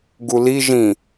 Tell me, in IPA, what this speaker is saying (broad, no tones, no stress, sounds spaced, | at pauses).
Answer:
ɡ u l i ʒ ĩ